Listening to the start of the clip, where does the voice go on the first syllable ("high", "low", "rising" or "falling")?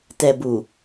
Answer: low